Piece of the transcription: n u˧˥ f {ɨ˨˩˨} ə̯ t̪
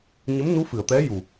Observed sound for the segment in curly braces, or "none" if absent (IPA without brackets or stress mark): ɨ˨˩˨